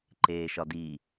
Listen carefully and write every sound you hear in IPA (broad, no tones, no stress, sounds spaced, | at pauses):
ǃ eː ʃ ɒ d i